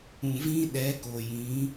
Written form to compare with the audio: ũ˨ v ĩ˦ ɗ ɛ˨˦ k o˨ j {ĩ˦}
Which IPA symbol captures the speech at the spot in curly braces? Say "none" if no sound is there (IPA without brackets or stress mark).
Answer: ĩ˨˦